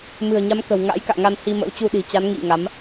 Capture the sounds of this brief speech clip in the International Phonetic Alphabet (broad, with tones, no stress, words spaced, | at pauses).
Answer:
mɨ̤˨˩ə̯ɲa˨˦mkə̤˨˩w ŋa̰˧˥jka̰ː˧˨ ŋa˧nhi˧ mə̰˧˥wt͡ɕu˧ɗi̤˨˩t͡ɕa˨˦n ŋḭ˧˨ ŋa˨˦m